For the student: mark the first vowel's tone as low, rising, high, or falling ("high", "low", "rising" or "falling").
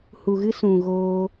low